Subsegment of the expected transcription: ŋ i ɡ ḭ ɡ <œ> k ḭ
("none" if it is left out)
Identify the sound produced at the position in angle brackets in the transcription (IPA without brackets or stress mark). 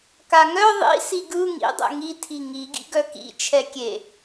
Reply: œ